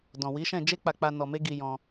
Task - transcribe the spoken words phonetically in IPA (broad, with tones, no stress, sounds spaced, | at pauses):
d ɔ̃˨ w i˨˦ ʃ ɛ̃˦˨ d͡ʒ e˧ k͡p a˨ k͡p a˨ n ɔ˨ m e˧ ɡ i˧ j ɔ̃˧